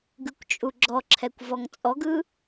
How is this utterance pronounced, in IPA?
ɡɯkʷt͡ʃʼuɡ͡ǁɔǁʰɛkʷ vɔŋt͡sʼɔɡɯ

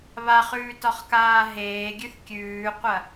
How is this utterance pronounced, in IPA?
βaχʉːtɒχkaː ɦeːɡʲʉθ kʲʉːqʷɐ

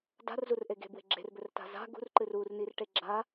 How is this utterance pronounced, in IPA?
da̤rzurʔe ɡe̤bwe̤ ɡ͡ǁe̤rbɵrta̤ za̤ ɡṳrǃɨr urnirʈe ɡ͡ǁa

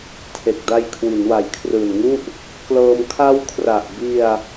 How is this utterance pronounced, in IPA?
tʰe˨˩k̚da˧j kʰwi˩˦nwa˨˩jkʰrɯː˨˩nŋu˥˩ʔ | klɤː˧m kʰa˦˥wkʰra˨˩ʔbi˧a̯

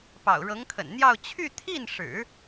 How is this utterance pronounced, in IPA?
pɑ̰˨˩ʊ̯ɻɤ˧˥ŋkʰə̰˨˩nn̪jɑ˥˧ʊ̯ t͡ɕʰy˥˧t̪ʰi˥˩nʂɻ̩˨˩˦

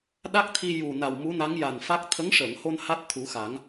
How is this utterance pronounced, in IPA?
ɗa˦˥k̚t̪ʰi˧ ju˨˩na˨˩w mu˧˥na˧˥ŋja˨˩nfa˦˥k̚ t̪ʰə˧˥ŋʂəː˨˩˨ŋho˧n ha˦˥t̚t̪ʰu˨˩˦xa˨˩˦ŋ

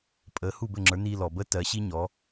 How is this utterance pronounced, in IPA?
pʼə˩˥ hu˥˩bɘ˥˩ŋ͡ǁə˞˩˥ni˧ lɔ˩bə˥tɜ˩˥ ɕi˥ɲɔ˩˥

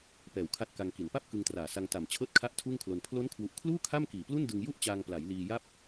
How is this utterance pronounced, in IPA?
pɛː˨˩wkʰa˦˥t̚ka˧ŋ ki˩˦npa˥˩p̚ kɯ˧ŋtraː˨˩sa˧ŋ ta˨˩m t͡ɕʰɤː˥˩t̚kʰa˥˩ʔtʰuː˥˩ŋkʰlo˧n pʰlo˦˥nkʰwu˨˩ʔkʰluː˥˩ kʰa˥˩mkiː˨˩plu˥˩ndɯ˧ŋ ju˥˩ʔt͡ɕaː˧ŋpla˩˦j liː˧ja˥˩p̚

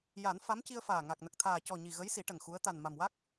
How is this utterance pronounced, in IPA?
ja˨˩˦n fa˧˥mci˧ə̯faː˨˩ ŋa˨˩k̚nə˨˩k̚t̪ʰaː˨˩ cɔ˨˩ ɲi˨˩ ɣə˧˥jsi˨˩˦ ʈə˨˩ŋxu˧˥ə̯ t̪a˨˩nma˨˩mwa˦˥k̚

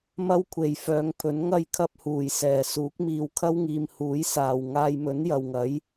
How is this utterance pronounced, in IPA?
mɐ˥wkʷʰe˨jfœː˨˧ŋpʰɵ˨˥n ŋɐ˥jkʰɐ˥p̚huː˨˩j sɛː˨˩suː˨˥k̚miː˨˧w kʰɐ˥wŋiː˨m huː˨˥jsaː˨w ŋaː˧jmɵ˨˥njɐ˨wŋɐ˨˥j

